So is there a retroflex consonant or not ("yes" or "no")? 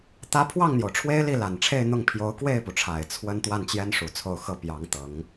yes